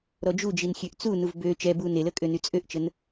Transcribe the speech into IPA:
ɾɔd͡ʒud͡ʒin xʲøʔt͡sunuv bø t͡ʃɛbu nelə kʼønyt͡sʼøʔt͡ʃən

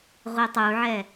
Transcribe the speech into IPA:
ʁʷitˤuʕɛ

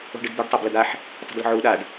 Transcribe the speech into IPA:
o̤ɖɨdd̪uɖ tˤabləd̪aħ | tˤə̤dlə̤ʕuːɗaɖ

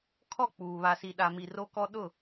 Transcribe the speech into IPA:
kʰɔ˦˨ k͡puː˨ βa˨si˨ɗa˨ mi˨ ro˦kɔ˦ ɗʊ˦˨

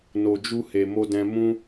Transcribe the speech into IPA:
no˧d͡ʒu˦he˧ mo˦dɛ̃˦ mũ˦

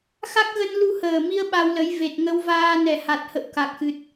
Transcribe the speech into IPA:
xa˦˥k̚ɣə˧n lu˧həː˨˩mi˧ə̯ ɓa˧wlə˨˦j ve˨˩t̚ŋə˧wvaː˧ nɛ˨˩ha˨˩t̚hə̰˧˨w ka˨˩k̚xɨ˨˩t̚

